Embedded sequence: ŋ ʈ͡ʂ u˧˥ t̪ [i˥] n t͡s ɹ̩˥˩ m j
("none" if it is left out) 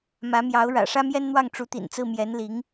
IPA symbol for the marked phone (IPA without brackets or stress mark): ḭ˨˩